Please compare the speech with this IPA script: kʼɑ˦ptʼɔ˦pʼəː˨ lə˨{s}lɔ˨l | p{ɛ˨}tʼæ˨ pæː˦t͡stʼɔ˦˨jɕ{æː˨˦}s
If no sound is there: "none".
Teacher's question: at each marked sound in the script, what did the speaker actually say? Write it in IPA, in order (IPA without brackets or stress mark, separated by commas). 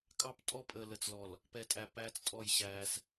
t͡s, ɛ˨, æː˦